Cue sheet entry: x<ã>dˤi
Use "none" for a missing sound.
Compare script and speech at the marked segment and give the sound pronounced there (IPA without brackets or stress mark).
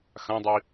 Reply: ã